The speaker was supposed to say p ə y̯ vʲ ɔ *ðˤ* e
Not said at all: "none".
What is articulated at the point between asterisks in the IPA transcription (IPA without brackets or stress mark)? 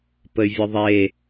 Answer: ðˤ